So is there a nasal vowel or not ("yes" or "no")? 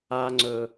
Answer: no